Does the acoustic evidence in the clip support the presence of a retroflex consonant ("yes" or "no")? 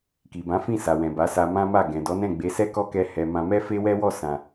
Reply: no